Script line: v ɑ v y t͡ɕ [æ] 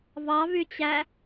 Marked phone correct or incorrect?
correct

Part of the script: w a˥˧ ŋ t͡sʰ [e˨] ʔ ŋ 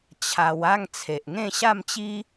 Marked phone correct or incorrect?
correct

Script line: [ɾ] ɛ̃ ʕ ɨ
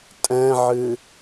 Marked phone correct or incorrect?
incorrect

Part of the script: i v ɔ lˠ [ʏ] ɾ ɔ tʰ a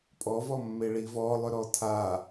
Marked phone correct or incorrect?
correct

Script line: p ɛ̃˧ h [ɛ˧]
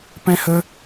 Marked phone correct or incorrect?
incorrect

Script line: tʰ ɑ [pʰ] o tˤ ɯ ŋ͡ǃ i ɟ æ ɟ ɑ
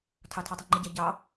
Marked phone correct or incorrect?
incorrect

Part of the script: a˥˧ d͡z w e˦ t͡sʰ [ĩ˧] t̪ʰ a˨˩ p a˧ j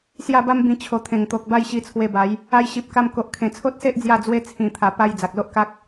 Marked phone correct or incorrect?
incorrect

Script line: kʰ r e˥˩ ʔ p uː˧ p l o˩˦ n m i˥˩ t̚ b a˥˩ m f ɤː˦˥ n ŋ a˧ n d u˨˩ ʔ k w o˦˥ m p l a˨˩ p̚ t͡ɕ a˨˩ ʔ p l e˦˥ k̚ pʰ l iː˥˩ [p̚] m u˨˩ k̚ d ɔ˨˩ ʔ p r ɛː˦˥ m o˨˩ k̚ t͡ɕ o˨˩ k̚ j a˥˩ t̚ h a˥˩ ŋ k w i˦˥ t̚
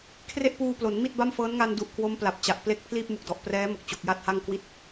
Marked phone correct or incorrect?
correct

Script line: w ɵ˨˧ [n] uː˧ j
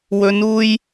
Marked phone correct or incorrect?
correct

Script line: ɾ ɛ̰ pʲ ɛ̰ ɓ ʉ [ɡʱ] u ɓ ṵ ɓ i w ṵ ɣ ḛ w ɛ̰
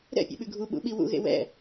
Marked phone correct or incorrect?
correct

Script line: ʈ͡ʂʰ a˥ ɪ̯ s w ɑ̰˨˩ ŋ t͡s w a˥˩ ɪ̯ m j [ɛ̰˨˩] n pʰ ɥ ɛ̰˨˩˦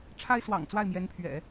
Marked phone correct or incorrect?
incorrect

